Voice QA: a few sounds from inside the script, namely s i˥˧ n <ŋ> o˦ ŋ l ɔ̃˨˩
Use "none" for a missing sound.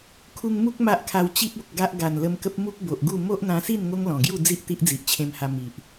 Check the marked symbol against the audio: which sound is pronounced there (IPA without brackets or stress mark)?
ŋ